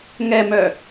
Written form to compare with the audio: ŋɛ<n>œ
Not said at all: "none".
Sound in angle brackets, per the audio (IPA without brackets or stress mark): m